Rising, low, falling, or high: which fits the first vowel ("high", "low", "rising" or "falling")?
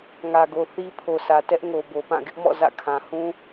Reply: low